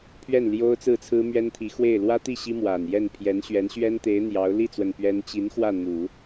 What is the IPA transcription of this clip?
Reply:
pʰ ɥ ɛ˥˩ n l j o˥ ʊ̯ t͡s ɹ̩˥˩ t͡sʰ ɹ̩˥ m ɥ ɛ˥ n t̪ʰ i˧˥ x w e˥˩ ɪ̯ l w ä˥ t̪ i˥˩ ɕ i˥ m w a˨˩ n j ɛ˥˩ n pʰ j ɛ˧˥ n ɕ ɥ ɛ˧˥ n ɕ ɥ ɛ˥ n t̪ e˧˥ ɪ̯ n̪ j ɑ˧˥ ʊ̯ l i˥˩ t͡s w ə˨˩ n p ɥ ɛ˥ n t͡ɕ i˧˥ n x w ä˥˩ n̪ u˨˩˦

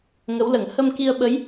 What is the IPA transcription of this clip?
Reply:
ŋ ə˧˥ w l ə˨˩˦ ŋ h ə˧ m k i˧ ə̯ ɓ ə˧˥ j

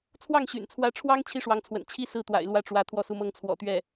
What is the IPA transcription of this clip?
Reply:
t͡sʰ w ɑ˥˩ ŋ ɕ y̰˨˩ n t͡sʰ w ä˧˥ ʈ͡ʂʰ w ɑ˥ ŋ t͡ɕʰ i˥ ʂ w ɑ˧˥ ŋ t͡sʰ w ə̰˨˩ n t͡ɕʰ i˥ s ɹ̩˥˩ t̪ w a̰˨˩ ɪ̯ l w ä˥˩ ʈ͡ʂ w ä˧˥ t̪ʰ w ɔ˥˩ s u˧˥ m ɤ˥ ŋ t͡sʰ w ɔ̰˨˩ t̪ ɥ ɛ˥˩

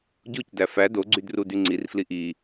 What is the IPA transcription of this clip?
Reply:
ɟ o c d æ f æ d o ɡ͡ǀ y d r u d y ŋ͡ǀ i r f l i ʔ i

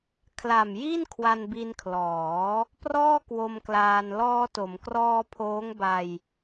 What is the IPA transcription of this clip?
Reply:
kʰ l a˨˩ m j i˥˩ n kʰ w a˧ n b i˧ n kʰ l ɔː˩˦ | p r ɔː˥˩ k w o˧ m k l aː˧ n l ɔː˧ t o˩˦ m k r ɔː˧ pʰ oː˦˥ ŋ b a˧ j

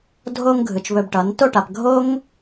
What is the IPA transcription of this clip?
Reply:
dʱ o˧ ŋ ɡʱ ɯ˨ t͡ʃ β ɵ˧ b ʈ ʌ˨˦ n t o˦˨ ʈ a˨ p ɡʱ o˦ ŋ

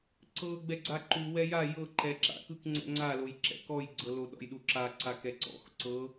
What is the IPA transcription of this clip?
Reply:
ǀ ɤ ɡ͡b ɛ ɡ͡ǀ a ǃ u w ɛ j a j ɤ ǃ ɛ ǁ a̰ k ɯ k ŋ͡ǀ ɛ̰ ŋ͡ǀ a l o j ǁ ɛ̰ k ɔ j ɡ͡ǀ ɤ l o ɗ ɔ̰ j ɗ u ǁ a ǀ a k ɛ ǀ ɔ̰ x ǀ ɤ

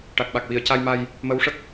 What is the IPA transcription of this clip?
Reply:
ʈ a˨˩ k̚ ɓ a˨˩ k̚ w i˨˩˨ ə̯ c a˧ j m a˧ j | m ə˧˥ w ʂ ə˦˥ k̚

